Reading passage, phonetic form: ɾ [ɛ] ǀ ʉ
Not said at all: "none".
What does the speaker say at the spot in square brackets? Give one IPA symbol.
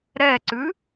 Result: ɛ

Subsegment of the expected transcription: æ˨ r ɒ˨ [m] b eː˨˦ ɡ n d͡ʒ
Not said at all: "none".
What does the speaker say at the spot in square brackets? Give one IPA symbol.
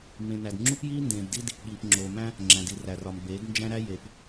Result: m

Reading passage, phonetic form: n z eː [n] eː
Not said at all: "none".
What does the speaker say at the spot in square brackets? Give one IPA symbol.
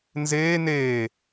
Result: n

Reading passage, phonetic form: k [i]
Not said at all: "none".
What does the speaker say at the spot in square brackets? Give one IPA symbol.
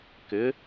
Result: ɪ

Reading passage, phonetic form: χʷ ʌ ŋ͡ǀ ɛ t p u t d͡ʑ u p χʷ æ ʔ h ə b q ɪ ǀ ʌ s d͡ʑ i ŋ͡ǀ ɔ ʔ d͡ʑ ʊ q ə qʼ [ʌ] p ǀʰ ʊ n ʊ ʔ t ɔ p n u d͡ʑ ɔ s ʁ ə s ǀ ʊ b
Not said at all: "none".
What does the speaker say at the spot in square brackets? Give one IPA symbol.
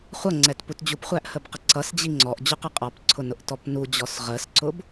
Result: ɑ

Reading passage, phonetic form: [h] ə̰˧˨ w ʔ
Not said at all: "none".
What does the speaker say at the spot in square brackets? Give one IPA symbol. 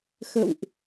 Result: x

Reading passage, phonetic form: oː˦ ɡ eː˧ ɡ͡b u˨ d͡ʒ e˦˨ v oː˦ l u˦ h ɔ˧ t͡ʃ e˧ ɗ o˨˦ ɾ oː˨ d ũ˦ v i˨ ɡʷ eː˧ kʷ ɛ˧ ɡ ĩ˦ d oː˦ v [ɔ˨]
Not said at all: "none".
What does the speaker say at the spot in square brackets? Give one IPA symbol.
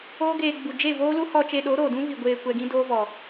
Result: ɔ˨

